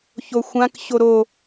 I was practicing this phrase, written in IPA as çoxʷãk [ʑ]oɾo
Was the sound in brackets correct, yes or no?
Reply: no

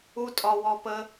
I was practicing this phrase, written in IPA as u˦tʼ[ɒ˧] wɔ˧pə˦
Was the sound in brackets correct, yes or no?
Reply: yes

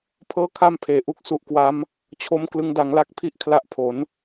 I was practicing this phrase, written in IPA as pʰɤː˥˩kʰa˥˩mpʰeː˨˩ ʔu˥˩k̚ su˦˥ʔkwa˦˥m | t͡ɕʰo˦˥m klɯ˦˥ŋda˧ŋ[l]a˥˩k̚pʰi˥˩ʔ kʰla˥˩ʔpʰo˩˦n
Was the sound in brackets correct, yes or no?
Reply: yes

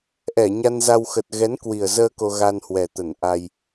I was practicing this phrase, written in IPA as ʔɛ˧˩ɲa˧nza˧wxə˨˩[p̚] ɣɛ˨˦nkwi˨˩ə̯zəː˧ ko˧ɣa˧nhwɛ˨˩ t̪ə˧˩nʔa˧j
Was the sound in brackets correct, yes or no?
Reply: no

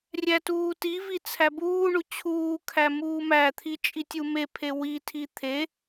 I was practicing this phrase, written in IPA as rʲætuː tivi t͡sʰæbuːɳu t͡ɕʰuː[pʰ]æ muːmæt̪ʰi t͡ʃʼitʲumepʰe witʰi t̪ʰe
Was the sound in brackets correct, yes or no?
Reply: no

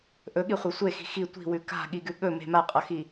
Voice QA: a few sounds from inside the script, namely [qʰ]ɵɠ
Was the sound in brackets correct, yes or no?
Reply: no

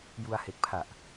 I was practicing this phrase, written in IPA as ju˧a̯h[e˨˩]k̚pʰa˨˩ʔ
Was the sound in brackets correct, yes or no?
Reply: yes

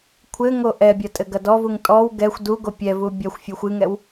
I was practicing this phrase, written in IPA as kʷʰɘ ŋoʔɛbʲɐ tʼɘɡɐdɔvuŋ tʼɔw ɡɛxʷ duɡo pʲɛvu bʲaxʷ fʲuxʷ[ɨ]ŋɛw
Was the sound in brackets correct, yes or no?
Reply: yes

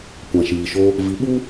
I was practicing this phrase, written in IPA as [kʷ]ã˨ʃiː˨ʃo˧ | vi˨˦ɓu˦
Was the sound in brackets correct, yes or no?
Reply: yes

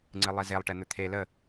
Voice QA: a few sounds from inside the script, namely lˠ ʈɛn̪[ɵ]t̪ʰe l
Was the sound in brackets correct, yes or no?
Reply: yes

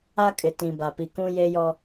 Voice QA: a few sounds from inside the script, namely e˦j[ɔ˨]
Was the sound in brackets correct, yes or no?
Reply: no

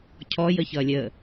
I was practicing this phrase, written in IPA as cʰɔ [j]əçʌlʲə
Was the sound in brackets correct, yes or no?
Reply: yes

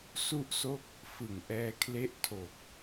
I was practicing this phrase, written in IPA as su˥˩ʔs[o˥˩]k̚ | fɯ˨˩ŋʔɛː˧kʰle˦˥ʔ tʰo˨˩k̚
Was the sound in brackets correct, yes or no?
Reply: yes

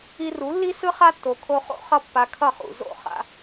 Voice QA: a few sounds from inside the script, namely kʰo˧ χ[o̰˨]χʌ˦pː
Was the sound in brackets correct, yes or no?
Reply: no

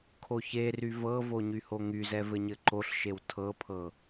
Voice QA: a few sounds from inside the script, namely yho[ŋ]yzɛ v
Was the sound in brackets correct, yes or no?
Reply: yes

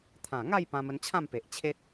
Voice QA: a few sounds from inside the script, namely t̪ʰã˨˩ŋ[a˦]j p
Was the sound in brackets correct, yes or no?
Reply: no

